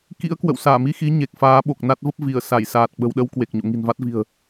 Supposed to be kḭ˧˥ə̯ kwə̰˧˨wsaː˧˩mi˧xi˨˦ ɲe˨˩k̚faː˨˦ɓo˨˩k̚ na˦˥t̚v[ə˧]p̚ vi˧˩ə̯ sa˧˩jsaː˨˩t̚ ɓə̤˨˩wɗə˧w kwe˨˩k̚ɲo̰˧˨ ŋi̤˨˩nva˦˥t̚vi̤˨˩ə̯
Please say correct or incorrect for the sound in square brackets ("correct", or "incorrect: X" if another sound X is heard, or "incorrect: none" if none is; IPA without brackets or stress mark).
incorrect: ə˦˥